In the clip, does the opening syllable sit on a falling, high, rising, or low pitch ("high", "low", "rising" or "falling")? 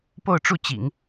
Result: falling